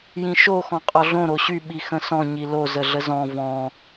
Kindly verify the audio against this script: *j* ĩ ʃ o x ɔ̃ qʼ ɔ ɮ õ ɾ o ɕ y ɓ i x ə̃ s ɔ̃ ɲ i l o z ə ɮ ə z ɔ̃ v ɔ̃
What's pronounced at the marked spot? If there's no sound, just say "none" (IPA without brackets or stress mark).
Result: j